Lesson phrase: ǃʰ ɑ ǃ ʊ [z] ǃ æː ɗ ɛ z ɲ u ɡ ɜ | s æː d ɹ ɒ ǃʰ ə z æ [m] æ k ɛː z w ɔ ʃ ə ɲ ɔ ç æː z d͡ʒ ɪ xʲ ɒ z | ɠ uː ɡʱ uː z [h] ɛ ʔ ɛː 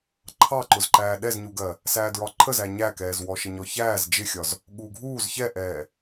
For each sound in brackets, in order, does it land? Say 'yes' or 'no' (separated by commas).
yes, no, no